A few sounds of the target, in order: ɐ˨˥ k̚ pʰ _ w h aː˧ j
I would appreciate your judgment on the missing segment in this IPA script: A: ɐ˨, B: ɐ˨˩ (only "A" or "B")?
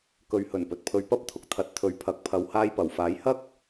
A